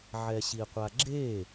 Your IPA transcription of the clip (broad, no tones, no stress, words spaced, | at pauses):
ʕɛɕiqʷaɡ͡ǁe